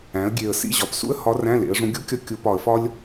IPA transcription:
æ̃˩˧ə̯ɡʲe˨˩ə̯ sḭ˧˥˧ʑɒ˩˧psṵ˥ə̯ hɒ˧˥ræ̃˧˥˧lḛ˩˧ə̯ʐũ˧ ɡʲu˥kʲɒ˥ kʲo˧pɒ˨˩ə̯fɒ˥lʲ

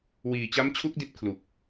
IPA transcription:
wiː˨˩t͡ɕa˦˥mt͡ɕʰu˦˥k̚ di˦˥t̚kʰlu˨˩k̚

